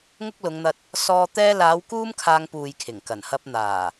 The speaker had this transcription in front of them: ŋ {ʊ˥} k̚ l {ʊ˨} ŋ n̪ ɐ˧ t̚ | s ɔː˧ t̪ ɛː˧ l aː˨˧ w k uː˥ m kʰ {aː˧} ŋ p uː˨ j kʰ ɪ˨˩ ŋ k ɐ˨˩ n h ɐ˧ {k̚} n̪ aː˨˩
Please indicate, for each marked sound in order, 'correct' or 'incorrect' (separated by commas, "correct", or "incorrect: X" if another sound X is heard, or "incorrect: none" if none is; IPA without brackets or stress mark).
correct, incorrect: ʊ˨˧, correct, incorrect: p̚